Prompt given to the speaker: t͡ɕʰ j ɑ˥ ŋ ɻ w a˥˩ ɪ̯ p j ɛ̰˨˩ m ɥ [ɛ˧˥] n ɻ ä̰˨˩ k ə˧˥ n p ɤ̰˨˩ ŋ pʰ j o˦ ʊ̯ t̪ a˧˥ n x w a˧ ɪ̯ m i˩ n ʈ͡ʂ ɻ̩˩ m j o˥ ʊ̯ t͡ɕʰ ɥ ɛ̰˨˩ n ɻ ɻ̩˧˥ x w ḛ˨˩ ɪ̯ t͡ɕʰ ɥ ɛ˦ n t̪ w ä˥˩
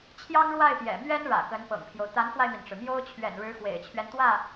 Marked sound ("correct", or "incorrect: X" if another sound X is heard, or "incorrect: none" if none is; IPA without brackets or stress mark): incorrect: ɛ˥